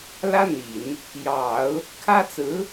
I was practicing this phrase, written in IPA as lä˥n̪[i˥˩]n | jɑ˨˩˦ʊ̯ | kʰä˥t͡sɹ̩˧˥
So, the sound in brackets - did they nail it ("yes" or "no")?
no